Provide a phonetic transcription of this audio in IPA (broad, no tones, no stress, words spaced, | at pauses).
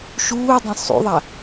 ʃuːdˤẽ sˤṵðˤa